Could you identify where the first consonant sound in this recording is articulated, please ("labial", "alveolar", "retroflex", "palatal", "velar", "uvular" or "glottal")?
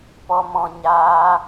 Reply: labial